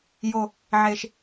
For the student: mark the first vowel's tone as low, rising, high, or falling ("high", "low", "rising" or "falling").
low